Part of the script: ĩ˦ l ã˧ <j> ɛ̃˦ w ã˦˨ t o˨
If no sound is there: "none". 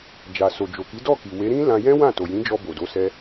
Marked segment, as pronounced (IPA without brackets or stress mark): j